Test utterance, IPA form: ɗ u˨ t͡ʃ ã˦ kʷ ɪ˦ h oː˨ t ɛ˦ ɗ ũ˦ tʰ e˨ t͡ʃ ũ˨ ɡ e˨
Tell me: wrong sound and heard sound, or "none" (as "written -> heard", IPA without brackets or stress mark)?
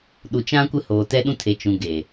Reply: none